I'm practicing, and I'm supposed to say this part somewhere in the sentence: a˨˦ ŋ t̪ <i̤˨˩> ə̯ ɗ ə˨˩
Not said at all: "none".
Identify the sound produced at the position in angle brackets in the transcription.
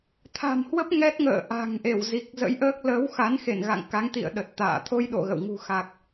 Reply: ḭ˧˨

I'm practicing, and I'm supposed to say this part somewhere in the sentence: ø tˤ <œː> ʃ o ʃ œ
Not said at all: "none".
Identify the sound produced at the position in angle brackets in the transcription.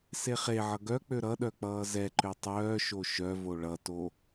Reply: œː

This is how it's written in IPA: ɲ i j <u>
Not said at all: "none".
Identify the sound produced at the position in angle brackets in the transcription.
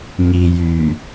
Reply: y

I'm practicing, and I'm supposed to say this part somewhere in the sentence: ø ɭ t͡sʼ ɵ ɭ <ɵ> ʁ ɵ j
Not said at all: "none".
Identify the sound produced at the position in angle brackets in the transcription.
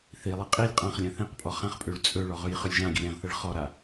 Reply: ɔ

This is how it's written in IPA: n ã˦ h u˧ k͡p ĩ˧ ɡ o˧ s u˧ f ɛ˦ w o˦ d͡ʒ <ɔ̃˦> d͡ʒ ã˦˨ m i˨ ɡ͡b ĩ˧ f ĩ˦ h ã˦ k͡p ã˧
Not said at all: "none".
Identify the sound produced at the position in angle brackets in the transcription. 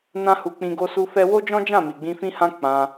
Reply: ɔ̃˦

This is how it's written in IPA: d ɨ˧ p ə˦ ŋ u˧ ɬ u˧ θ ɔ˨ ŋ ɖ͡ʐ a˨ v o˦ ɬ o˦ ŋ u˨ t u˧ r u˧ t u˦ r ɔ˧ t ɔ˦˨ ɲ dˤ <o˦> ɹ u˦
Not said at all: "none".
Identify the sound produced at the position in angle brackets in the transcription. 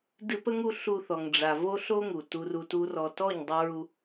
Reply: o˦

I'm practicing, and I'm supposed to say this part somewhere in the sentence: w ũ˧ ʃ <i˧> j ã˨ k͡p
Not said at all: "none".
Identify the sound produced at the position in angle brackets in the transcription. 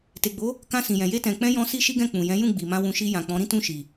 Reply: i˧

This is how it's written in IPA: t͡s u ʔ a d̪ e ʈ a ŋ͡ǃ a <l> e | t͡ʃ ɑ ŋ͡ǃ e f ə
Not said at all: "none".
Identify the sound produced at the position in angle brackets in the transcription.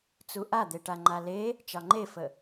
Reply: l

